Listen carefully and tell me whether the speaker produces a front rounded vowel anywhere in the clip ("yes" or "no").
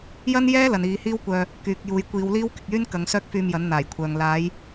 yes